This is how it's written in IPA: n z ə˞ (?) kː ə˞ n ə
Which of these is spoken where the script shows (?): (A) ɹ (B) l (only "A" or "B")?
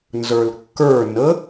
B